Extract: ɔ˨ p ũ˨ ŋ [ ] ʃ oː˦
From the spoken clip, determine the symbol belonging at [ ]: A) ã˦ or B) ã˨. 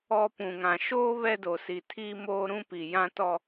B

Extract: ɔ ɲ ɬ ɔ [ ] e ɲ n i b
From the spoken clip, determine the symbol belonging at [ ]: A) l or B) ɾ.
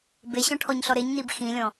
B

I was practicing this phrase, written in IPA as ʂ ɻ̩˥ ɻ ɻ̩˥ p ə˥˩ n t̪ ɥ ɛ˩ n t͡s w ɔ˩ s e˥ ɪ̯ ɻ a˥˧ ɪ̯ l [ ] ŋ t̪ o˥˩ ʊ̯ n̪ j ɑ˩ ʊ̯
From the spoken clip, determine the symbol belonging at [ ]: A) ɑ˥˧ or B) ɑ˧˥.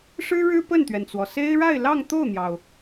A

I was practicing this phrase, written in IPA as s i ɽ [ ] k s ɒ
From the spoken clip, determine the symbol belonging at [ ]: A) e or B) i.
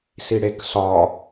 A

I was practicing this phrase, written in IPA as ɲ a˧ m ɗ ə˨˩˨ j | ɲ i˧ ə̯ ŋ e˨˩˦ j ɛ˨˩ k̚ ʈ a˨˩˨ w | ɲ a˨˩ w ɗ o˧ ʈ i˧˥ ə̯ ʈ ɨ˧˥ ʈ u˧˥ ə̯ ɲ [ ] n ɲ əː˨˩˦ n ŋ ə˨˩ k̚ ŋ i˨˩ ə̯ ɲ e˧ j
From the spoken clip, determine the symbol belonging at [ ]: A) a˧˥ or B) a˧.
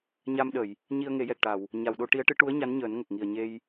A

